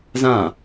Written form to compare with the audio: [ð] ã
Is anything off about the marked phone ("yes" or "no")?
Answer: yes